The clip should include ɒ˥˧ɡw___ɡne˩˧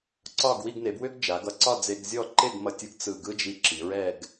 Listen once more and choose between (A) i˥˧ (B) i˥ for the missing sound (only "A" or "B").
A